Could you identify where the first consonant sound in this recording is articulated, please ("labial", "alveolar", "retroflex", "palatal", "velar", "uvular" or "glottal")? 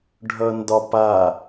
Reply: retroflex